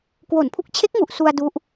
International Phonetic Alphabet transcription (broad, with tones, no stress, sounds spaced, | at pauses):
k w o˨˩ n pʰ u˦˥ k̚ t͡ɕʰ e˦˥ k̚ ŋ u˨˩ ʔ s u˧ a̯ d u˦˥ ʔ